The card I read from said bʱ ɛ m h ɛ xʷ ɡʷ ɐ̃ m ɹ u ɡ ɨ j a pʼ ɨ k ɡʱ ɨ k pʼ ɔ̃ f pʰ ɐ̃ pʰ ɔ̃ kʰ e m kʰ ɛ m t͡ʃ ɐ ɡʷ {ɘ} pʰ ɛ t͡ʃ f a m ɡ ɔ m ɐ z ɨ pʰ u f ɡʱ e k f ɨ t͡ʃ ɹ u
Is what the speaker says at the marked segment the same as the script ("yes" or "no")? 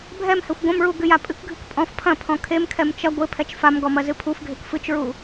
yes